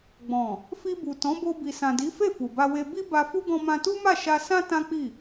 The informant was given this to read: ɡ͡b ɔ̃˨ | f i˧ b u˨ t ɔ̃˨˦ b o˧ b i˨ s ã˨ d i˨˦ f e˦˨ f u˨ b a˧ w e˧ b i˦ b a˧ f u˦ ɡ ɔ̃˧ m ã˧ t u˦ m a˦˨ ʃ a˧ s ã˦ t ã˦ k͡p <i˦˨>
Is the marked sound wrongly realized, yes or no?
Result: no